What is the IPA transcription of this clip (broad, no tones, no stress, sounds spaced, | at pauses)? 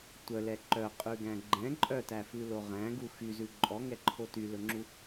tʷ œ l ɛ ǃ œ qʼ ʉ ɡ æ̃ ɡ͡ǃ ɛ̃ ǃʼ œ t æ f ʉ l o ʁ æ̃ ɡ u x y z ʉ ǃʼ ɔ ŋ ɛ ǃʰ o t y l ɵ ŋ͡ǁ u